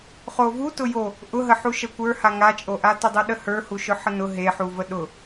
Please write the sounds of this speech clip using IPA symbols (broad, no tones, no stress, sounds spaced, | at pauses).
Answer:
χ o v u t ʊ j o | ʔ ʊ ɦ ə ħ u ʃ ə kʷ ə˞ h a ŋ a t͡ʃʼ o ʔ a t ʊ dˤ u ɗ ə h ə˞ h u ʃ ʊ ħ ə n ʊ ɦ e ħ u v ə ɗ ʊ